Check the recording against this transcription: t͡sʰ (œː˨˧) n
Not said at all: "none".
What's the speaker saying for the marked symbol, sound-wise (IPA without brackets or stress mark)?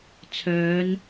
œː˨˧